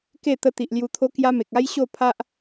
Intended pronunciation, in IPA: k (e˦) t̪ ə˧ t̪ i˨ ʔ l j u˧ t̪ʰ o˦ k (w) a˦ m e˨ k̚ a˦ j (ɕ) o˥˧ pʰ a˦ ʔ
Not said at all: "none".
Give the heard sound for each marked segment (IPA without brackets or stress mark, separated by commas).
e˥˧, j, ɕ